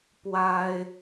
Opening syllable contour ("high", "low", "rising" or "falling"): high